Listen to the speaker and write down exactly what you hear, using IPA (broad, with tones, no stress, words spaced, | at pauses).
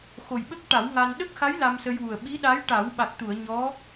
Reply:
xo˨˩jɓə˦˥k̚ʈa˨˩˦w ŋa˧n ɗə˦˥k̚xa˧˥j la˧msə˧jwu˨˩ə̯ ɓi˧˥ɗa˧˥j ʈa˨˩˦wɓa˨˩k̚t̪u˨˩˨ə̯ ɲɔ˧˥